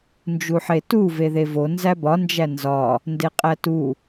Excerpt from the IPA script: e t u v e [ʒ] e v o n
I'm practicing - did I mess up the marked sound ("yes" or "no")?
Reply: yes